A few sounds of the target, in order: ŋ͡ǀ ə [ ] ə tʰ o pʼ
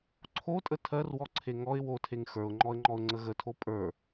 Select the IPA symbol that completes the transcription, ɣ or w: ɣ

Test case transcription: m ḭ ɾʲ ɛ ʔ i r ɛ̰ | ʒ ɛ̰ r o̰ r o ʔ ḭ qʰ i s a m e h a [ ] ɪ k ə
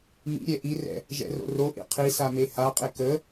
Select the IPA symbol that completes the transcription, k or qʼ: qʼ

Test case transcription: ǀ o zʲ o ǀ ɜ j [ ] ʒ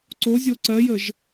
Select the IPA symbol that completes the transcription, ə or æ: ə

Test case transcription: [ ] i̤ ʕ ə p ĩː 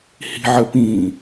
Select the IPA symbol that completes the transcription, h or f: h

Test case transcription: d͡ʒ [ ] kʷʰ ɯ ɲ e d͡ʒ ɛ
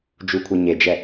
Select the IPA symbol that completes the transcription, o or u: u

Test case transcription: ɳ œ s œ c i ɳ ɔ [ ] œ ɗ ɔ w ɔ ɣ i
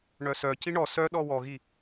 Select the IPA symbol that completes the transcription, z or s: s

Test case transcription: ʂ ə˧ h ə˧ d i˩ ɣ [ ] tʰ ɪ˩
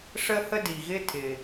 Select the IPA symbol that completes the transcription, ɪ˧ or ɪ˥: ɪ˧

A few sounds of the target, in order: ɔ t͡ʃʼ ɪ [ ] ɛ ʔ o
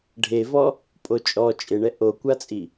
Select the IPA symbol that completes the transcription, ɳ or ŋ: ɳ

